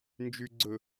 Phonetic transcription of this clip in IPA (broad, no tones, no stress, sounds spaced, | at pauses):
n d͡ʒ y ɡ͡ǀ ɵ